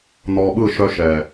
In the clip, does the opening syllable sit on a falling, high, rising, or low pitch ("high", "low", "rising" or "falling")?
low